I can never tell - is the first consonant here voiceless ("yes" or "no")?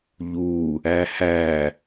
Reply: no